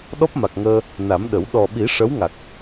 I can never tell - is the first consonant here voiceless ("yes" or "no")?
no